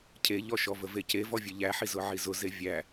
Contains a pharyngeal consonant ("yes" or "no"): yes